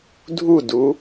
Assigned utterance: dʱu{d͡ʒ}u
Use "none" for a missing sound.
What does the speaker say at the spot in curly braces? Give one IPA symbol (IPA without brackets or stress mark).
d